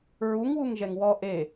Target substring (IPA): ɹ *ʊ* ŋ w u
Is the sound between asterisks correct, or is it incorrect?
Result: incorrect